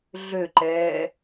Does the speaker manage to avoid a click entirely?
no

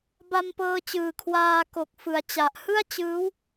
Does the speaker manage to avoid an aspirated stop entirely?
no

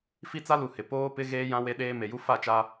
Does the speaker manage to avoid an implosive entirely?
no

